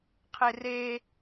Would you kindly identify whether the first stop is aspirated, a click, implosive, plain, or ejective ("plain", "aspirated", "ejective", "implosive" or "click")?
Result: aspirated